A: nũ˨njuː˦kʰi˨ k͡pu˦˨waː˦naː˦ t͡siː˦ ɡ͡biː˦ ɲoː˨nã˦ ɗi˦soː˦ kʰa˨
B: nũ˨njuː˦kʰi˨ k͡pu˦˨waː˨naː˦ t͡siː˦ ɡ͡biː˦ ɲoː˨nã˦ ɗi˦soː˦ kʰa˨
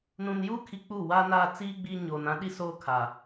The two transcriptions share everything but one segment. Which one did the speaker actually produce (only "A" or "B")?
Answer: A